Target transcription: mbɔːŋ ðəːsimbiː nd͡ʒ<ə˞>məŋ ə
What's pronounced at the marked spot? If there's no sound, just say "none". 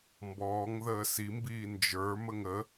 ə˞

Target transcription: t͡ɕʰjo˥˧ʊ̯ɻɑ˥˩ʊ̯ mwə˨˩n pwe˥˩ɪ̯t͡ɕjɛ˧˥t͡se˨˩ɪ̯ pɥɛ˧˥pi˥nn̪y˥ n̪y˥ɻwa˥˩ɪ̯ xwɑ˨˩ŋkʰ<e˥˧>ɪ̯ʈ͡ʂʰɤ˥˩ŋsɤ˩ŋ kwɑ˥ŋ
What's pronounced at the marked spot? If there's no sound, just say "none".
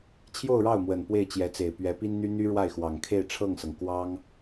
e˥˧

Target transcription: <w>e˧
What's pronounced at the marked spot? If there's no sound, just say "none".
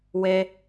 w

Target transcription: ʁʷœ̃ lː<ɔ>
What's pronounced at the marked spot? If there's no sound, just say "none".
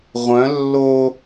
o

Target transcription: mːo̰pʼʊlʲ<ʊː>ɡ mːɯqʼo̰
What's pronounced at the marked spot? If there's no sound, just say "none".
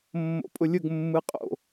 ʊ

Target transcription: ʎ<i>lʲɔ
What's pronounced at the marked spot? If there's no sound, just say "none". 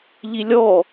i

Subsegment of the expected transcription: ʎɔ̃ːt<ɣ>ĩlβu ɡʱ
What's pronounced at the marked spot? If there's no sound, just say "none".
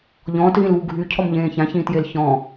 ɣ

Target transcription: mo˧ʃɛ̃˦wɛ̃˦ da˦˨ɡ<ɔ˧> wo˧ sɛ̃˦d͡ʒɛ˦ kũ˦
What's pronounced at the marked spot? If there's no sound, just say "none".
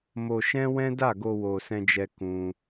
o˧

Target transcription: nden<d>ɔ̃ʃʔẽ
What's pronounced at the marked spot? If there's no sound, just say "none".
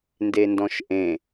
d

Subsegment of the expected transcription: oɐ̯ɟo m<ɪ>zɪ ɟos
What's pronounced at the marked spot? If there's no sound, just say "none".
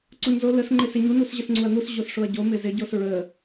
ɪ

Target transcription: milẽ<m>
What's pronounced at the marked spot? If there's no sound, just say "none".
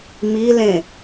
none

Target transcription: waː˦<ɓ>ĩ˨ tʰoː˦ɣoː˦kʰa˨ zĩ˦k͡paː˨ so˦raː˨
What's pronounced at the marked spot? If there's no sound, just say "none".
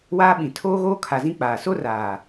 ɓ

